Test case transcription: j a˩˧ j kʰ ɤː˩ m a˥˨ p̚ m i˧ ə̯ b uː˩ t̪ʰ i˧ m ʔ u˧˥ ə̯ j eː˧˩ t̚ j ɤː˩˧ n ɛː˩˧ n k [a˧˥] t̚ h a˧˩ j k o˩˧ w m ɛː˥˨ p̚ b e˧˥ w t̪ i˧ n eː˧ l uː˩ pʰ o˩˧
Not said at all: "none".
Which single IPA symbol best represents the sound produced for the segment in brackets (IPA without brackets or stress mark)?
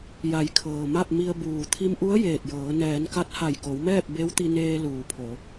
a˧˥